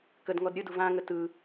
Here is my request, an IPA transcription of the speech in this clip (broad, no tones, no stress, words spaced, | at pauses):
kədŋɔd ɾʲɯdu vãŋə tɯ